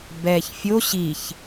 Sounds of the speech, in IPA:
b ɛː ç fʲ o ɕ i ç

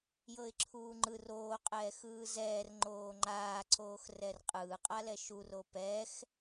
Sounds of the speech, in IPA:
j ɤ ɪ̯ ǁʰ uː ŋ͡ǃ ɯ r oː qʼ ɛː x ɯː z ɛː r ŋ͡ǃ oː ŋ͡ǃ aː ǀ oː x r ɛ r qʼ ɯː qʼ a l ɛ ʃ u r o p ɛ x

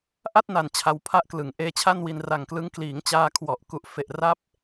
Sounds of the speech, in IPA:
ʔ a˥˩ t̚ n a˨˩ n t͡ɕʰ a˧ w pʰ a˥˩ ʔ k l ɯ˨˩ ŋ ʔ eː˦˥ t͡ɕʰ a˥˩ n w i˧ n r a˨˩ ŋ k l ɯ˦˥ ŋ k l iː˩˦ ŋ t͡ɕ aː˧ kʰ w ɔ˨˩ ʔ k u˨˩ ʔ f e˨˩ ʔ r a˦˥ p̚

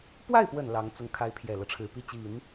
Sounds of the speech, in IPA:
p w a˥˩ ɪ̯ p w ə˨˩ n l ɑ˧˥ ŋ t͡s ʊ˥˩ ŋ kʰ a˧˥ ɪ̯ pʰ j ɛ˨˩ l ɤ˦ ʈ͡ʂʰ ɻ̩˨˩ p i˥˩ t͡ɕ i˨˩˦ n

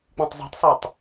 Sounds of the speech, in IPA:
k͡p ĩ tˤ zˤ i̤ tˤ sˤ y tˤ

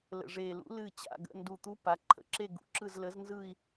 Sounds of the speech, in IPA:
l ə̰˨˩ ʐ e˨˩ l ṵ˨˥ l ɨ˥˧ t͡ɕ a̰˥˧ ɡ ə̰˧˥˧ n d u˨˩ t̪ u˨˥ p a˩˧ ǃʰ ə̰˥˧ ǁ e˥˧ ɡ ṵ˨˥ ǁ ɯ˥˧ z l ə˨˥ z n z ɯ˥˧ i̯

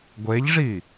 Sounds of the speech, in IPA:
ɡʷ e ʎ ʐ i

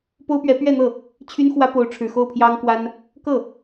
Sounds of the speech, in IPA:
p o˥ ʊ̯ p ɥ ɛ˧˥ p ɥ ɛ˥˧ n̪ ɤ˥˩ | t͡ɕʰ y˥ n x w ä˥ p o˧˥ ʊ̯ ʈ͡ʂʰ ɻ̩˨˩ x o˥˩ ʊ̯ pʰ j ɑ˥ ŋ k w a˥ n | k ɤ˥˩

